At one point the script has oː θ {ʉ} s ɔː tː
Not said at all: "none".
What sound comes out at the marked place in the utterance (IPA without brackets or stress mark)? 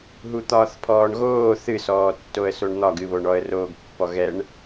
ɨ